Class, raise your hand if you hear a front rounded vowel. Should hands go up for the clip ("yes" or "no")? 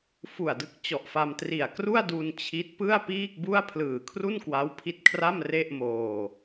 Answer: no